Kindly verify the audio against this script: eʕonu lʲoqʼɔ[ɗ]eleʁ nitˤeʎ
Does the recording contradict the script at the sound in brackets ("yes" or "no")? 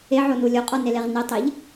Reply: yes